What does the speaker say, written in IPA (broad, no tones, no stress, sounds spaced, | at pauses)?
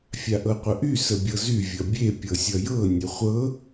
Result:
fʲ a ʔ ɤ qʷ ə ʔ y s ə bʲ ɤ z y vʲ ʌ bʲ e pʲ ɤ sʲ ʌ j ɤ nʲ ə χʷ ɤ